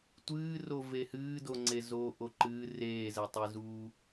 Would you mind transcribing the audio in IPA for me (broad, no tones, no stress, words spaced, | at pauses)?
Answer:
tʷɨːro vehɨːdoŋ͡ǀe zoːʔoǃɨː reːzɛtˤezuː